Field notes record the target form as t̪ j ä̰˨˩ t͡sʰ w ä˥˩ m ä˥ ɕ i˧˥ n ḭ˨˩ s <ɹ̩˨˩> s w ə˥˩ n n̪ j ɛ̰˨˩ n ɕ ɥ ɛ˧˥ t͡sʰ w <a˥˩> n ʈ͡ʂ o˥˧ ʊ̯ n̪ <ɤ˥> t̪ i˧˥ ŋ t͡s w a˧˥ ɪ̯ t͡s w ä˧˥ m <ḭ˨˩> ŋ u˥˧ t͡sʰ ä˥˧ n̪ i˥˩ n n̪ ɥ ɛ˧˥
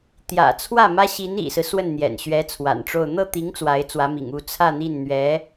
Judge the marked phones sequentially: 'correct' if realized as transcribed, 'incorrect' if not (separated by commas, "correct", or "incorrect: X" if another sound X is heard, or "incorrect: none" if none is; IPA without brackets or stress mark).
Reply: incorrect: ɹ̩˦, incorrect: a̰˨˩, incorrect: ɤ˥˩, correct